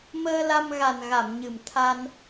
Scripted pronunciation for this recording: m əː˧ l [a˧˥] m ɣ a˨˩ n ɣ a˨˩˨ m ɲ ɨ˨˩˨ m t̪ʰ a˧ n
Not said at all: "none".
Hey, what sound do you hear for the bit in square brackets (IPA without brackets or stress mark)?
a˧